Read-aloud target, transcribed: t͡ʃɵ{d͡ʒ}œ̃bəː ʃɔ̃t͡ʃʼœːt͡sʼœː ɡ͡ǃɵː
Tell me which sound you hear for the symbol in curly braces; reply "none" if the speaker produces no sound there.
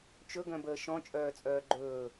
ɡ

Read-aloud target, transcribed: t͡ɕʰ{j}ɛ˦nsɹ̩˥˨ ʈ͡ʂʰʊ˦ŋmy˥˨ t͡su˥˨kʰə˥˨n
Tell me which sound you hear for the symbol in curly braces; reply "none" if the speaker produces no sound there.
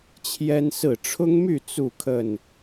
j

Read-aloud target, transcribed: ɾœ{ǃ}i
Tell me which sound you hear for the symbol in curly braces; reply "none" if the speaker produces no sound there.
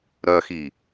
x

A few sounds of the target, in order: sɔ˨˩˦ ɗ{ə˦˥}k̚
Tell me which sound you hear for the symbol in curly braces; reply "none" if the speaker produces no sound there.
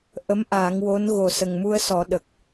ə˨˩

